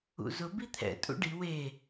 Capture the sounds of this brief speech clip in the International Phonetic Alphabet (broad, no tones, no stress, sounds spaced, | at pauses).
ṵ z ʊ b i t̪ʰ ɛ̰ tʼ ṵ ɖ i w e